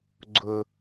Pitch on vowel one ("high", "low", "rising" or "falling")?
low